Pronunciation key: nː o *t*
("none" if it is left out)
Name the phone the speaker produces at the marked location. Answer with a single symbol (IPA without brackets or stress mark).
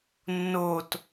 t